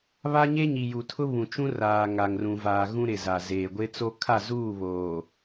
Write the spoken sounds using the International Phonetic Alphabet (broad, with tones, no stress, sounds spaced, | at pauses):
β a˦ ɲ e˦ ɲ i˨ j u˨ tʰ ʊ˦ β ũ˨ t͡ʃ ũ˦ r aː˨ ŋ a˨ ŋ r ũ˨ v aː˨ ɣ ũ˦ ɾ ɪ˨ z a˨ z eː˨ ɡʷ e˦ t͡s o˦ kʰ a˦˨ z uː˦˨ β oː˨